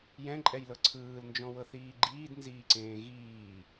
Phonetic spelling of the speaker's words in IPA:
jɛ̃ǃʼɛjlɤ ǀʰɯːlnd͡ʒɔ̃wɤθiː ɡ͡ǃiːdnziːǀẽː ɣiː

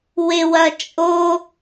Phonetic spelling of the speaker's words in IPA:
wɪwɐ t͡ʃʼo

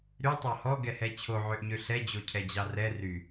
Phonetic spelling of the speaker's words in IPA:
ɾytˤɑ hɔɡɛhɛ t͡ɕʰoʕøʔɲø ɬɛd͡ʑocʰɛd͡ʑɑ rɛ ry

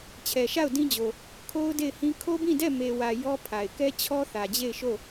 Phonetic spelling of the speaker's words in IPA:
t͡ɕʰɛ˨ʃa˦˨ʊ̯dĩ˦d͡ʑo˨ | kʰo˦ʊ̯de˦˨ɪ̯hĩ˦ kʰo˦bĩ˦˨dɛ˦˨ me˨wä˨ jɔ˦pʰa˨ɪ̯ kɛ˦ t͡ɕʰɔ˦θä˨d͡ʑe˦˨ɪ̯ʃo˦˨

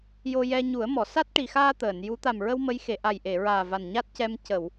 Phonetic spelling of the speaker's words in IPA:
jo˧jɛ˧ɲu˨˩˦ə̯mɔ˨˩˨ sa˦˥t̚ʈi˨˩xaː˧ t̪əː˨˩˨nju˧˥ t̪a˨˩mɹə˧w mə˧˥jxe˨˩˨ ʔa˨˩jʔe˨˩˨ɹaː˨˩ va˨˩nɲa˦˥t̚cɛ˧m cə˨˩˨w

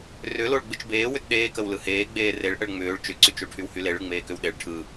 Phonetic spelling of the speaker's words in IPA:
rʏloɭ ɡ͡bɯt͡ʃbeː wʏtɗeːkəw lɯheː ɡ͡beːreɭ ʔəɭŋ͡mʏːɭ t͡ʃʏǀyt͡ʃoʈʰyw hyleɭɯ ŋ͡meːkʏwɗeɭ ʈʰɯ

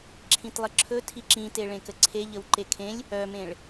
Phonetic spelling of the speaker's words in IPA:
ǁʰĩtlˠəǁʰɵ tʰiǁĩte ɭẽkəǀʰe ʎəwǃekʰẽlʲ | œmẽɭ

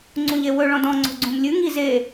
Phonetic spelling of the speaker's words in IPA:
ŋ͡ǀũʎewɵ ɭɔ̃dɔ̃ ŋ͡ǀo̤ɡ͡ǀũmlʲʉ ŋi ze

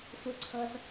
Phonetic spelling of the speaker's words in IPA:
sʷɯǀʰɤz

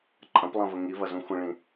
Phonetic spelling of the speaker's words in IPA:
ǃʼɐ̃plˠɐ̃və ŋivɐzũ xʷə̃ɭĩ

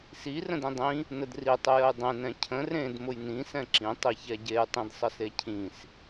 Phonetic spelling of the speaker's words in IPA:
si rə̃dĩdˤĩ | nədri tˤʊjəjdˤẽ nɛ̃cʰə̃ rẽd mʊjnĩ sɛ̃ǁĩ tˤiçɛɟej tˤĩdsˤəsecʰĩs

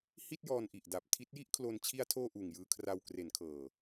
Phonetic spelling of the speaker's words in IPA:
hi˥˩t̚jɔː˧nʔi˨˩ʔda˨˩p̚ tʰi˦˥t̚ji˥˩ʔkʰlo˧n t͡ɕʰi˧a̯tʰoː˧ ʔuː˨˩ŋjɯː˧kʰra˧w kre˩˦nkʰɤː˨˩

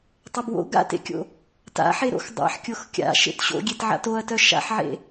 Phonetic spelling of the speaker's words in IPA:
tˤʊbwo̰ ɡa̰tḛkʲo̰ | ta̰ħe ɾo̰xdˤa̰ħkʲox kʲa̰ʃḛt ɕo̰ɡʲetʕa̰ toɐ̯tœ ʃa̰ħʕḛ

